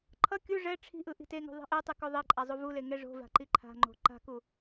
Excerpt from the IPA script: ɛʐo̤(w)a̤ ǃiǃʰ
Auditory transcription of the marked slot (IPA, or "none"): v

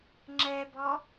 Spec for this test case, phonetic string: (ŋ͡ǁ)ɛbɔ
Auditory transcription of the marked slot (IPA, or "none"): ŋ͡ǁ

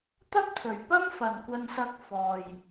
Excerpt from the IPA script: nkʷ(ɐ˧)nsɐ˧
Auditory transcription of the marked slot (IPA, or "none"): ɐ˧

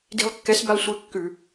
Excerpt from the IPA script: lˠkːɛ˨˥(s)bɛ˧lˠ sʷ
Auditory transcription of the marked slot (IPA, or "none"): s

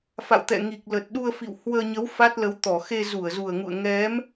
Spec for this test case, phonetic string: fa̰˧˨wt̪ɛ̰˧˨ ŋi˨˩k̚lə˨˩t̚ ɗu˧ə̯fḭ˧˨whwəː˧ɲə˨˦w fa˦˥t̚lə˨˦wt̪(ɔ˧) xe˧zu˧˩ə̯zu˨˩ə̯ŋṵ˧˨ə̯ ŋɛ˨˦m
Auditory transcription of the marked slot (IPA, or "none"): ɔ˧˩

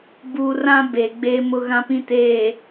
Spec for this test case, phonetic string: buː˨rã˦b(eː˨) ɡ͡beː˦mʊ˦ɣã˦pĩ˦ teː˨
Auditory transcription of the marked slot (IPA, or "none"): eː˨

